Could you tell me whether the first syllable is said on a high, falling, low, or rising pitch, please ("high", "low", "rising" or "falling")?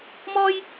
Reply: high